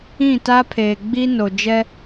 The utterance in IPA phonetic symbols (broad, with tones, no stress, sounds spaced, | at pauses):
ĩ˦˨ t a˦ pʰ eː˨ ɡ͡b i˦ n o˨ d͡ʒ ɛ˦